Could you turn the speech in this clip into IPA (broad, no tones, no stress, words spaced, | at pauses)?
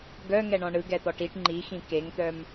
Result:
ɡœ ŋɛɳɔ̃ɳɯ ɡɛt̪ɔʈiʈ ŋ͡ǃixĩ keŋt̪œm